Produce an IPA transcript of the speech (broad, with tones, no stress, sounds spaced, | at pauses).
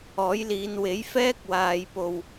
ɔː˨˥ j l iː˨˧ n w e˨˥ j f ɛː˥ k̚ w aː˨ j p o˨ w